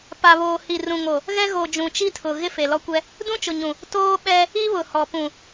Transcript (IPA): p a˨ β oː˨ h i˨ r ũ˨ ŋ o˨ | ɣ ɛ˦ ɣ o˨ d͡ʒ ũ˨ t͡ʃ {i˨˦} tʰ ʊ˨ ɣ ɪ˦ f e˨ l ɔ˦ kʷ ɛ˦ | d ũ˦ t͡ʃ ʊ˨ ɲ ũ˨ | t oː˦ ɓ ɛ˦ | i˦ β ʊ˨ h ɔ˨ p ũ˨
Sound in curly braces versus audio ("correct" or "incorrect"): incorrect